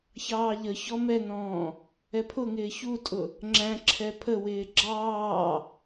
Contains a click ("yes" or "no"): yes